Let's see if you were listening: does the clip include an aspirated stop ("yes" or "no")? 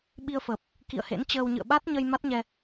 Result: no